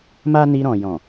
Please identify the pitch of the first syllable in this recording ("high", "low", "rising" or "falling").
high